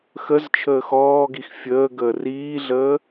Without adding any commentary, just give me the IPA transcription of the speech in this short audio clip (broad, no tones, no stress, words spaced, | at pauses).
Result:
xəzt͡ʃʰəːx ɔːɡix fʲəːɡəː riːɮəː